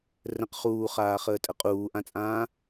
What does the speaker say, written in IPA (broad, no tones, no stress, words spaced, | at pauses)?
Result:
rə̃q χuːχaːχəːtʼə qʼuːʔãt͡sʼãː